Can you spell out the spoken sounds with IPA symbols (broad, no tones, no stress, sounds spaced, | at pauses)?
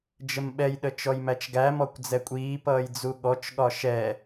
d͡ʒ ə m ɓ ɛ j ɗ ə t͡ʃ ɔ j m æ t͡ʃ ɡ æ m ɔ kʷ d͡z ɛ kʷʼ iː p ʌː j d͡z u ɠ ɔ t͡ʃ ɠ ɒ ʃ ɛ